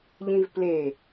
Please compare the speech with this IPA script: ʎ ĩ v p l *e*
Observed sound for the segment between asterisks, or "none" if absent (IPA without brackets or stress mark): e